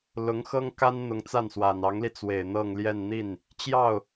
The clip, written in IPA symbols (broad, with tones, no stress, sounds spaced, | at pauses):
l ʊ˧˥ ŋ x ɤ˥ ŋ k a˥ n n̪ ʊ˧˥ ŋ t͡s a˥˩ n s w a˨˩ n ɑ˧˥ ŋ l i˧ t͡s w e˨˩ ɪ̯ n̪ ɤ˥˧ ŋ l j ɛ˥˧ n n̪ i˥˩ n | t͡ɕ j ɑ˥˩ ʊ̯